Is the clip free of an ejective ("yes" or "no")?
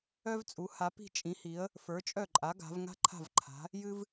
no